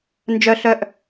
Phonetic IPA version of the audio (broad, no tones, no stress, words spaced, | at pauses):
nd͡ʒœ ɬœʔ